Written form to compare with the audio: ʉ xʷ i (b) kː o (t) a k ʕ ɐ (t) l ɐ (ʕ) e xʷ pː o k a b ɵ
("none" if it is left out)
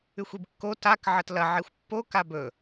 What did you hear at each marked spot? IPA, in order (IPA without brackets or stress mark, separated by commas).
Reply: b, t, t, ʕ